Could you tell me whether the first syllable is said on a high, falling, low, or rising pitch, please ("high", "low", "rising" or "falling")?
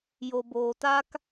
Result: low